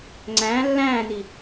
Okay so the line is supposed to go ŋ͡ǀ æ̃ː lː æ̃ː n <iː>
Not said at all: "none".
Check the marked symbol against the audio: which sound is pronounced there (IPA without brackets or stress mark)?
i